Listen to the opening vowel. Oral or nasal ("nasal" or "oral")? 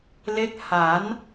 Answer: oral